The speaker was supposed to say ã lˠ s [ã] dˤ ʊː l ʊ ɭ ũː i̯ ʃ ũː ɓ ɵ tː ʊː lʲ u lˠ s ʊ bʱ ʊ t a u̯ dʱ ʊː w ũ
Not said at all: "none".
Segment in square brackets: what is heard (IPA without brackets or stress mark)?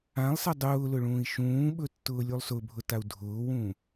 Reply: a